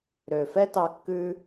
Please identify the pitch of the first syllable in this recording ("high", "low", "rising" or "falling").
low